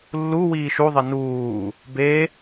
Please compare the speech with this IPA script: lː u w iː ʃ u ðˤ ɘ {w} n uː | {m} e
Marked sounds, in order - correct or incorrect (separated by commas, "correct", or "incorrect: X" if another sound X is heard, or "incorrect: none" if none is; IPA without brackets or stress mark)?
incorrect: none, incorrect: b